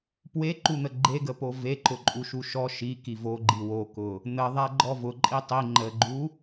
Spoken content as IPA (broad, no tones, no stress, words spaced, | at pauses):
pweǃun̪ə ɡ͡ǃeɡəpo ve ǃʊǃʼuʃuʃɔ ʃi kivoɡ͡ǃi wokʊ | n̪əðˤæ ɡ͡ǃɔvʊǃʼi tˤi ŋ͡ǃəɡ͡ǃu